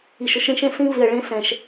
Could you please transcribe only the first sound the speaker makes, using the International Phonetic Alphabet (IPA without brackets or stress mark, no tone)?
i